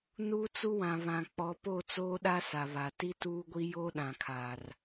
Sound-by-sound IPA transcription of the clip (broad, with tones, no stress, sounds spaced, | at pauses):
n uː˦ t͡s u˦ w ã˨ β ã˨ k͡p ɔ˨˦ p o˦˨ t͡s oː˦ ɗ a˦ s a˨ β a˨ t i˦ t uː˦ ɡʷ i˦ j oː˦ ɗ ã˨ kʰ aː˨ r